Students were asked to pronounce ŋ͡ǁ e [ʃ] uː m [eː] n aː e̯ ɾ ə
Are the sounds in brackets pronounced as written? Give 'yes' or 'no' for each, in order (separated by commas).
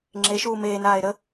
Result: yes, yes